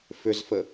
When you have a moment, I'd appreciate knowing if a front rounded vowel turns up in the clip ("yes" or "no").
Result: yes